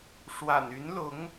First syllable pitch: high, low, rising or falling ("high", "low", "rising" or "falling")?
low